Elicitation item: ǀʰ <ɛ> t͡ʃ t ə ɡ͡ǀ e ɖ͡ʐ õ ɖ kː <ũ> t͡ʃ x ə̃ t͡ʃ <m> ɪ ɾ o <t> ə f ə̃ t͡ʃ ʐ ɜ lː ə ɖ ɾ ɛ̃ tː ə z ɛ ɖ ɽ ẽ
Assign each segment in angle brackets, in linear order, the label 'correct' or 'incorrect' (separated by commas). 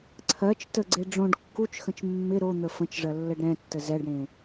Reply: incorrect, incorrect, incorrect, incorrect